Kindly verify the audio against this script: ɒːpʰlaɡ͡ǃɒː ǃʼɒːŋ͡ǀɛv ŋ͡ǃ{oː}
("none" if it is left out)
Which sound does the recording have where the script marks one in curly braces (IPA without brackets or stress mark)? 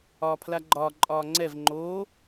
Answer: oː